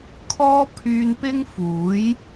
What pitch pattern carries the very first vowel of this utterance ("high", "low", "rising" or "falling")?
high